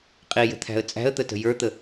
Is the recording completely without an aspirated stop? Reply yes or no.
no